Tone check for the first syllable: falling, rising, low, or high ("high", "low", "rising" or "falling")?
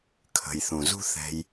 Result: low